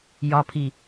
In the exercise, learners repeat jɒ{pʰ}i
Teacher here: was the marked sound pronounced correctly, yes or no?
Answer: yes